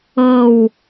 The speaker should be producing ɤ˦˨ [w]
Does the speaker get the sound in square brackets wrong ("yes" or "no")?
no